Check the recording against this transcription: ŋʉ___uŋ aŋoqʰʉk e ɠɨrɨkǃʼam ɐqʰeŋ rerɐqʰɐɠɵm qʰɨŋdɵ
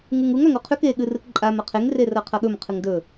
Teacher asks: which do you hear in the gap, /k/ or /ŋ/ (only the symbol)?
ŋ